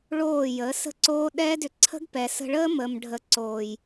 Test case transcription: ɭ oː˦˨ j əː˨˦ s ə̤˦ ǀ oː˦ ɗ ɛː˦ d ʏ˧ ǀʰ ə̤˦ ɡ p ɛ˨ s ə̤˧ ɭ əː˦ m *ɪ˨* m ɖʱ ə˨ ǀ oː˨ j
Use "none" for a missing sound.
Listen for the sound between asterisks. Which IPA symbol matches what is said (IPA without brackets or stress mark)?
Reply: ə˨